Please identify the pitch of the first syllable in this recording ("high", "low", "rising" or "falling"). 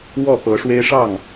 falling